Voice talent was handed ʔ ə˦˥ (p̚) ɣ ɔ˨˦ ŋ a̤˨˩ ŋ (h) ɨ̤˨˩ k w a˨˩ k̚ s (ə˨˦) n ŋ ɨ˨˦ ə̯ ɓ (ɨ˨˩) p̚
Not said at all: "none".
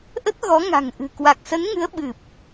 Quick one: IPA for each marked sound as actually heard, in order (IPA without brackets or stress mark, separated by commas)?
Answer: t̚, ʔ, ə˨˦, ɨ˨˩